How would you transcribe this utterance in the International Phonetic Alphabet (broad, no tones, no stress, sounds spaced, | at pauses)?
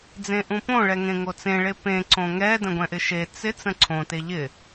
d͡z ẽ ʔ ũ p õ ɭ ɛ ŋ ẽ ŋ o t͡s ẽ ɭ e p ẽ ǀ õ ŋ ɛ d ə̃ ɡʷ ɛ̃ ʔ ɪ ʃ e t͡s ɪ t͡s ə̃ ǀʰ õ t e ʎ ɪ